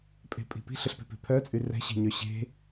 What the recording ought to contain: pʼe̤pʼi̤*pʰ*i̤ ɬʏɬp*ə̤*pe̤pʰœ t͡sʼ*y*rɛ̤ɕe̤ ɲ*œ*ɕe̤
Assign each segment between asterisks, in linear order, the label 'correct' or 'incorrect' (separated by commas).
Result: incorrect, incorrect, correct, correct